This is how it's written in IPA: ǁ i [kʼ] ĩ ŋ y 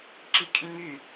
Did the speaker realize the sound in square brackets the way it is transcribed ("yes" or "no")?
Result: yes